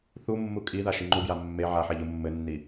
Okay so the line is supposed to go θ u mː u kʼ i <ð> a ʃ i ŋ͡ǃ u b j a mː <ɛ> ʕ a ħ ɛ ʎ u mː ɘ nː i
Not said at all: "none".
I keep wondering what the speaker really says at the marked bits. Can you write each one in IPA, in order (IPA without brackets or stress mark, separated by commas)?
ð, e